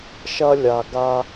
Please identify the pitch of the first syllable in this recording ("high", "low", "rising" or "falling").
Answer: high